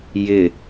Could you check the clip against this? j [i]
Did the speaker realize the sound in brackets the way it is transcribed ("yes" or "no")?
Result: no